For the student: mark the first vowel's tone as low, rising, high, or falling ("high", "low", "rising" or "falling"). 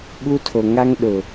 high